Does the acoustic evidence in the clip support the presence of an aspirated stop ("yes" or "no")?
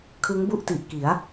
yes